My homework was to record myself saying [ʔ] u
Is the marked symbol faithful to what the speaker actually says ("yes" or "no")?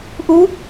yes